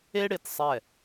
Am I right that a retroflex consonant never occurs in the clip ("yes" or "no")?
no